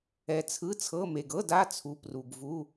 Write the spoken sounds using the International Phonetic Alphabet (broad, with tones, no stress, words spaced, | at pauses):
ɛ˨t͡sʰɯ˧˥˧t͡sʰɤ˧˥˧me˨ɡ ɤ˧˥˧d a˧˥˧t͡sʰu˨˦ pru˨ɡvu˧˥˧